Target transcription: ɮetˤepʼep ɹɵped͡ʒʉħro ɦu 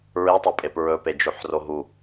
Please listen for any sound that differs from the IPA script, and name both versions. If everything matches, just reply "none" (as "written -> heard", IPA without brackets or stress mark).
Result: ɮ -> ɹ